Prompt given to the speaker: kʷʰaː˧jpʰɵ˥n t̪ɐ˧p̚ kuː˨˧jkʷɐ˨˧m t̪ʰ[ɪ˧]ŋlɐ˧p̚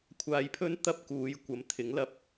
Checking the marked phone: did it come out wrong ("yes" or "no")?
yes